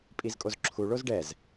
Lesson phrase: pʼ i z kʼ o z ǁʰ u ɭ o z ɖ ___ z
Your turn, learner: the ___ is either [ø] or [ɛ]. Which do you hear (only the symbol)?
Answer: ɛ